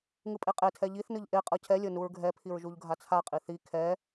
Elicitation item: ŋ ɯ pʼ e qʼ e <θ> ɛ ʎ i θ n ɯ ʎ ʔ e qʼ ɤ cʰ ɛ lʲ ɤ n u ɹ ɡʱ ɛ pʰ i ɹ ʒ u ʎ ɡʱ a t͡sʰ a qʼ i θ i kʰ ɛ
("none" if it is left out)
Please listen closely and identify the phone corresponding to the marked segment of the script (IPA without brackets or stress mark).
tʰ